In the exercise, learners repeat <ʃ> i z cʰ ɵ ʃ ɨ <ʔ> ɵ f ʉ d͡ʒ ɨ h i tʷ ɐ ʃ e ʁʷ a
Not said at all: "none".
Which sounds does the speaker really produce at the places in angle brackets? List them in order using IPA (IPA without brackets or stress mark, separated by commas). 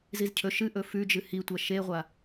z, ʔ